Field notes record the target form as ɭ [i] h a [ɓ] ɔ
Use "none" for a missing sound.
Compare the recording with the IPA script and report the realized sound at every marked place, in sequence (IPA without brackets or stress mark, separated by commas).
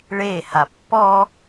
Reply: e, pː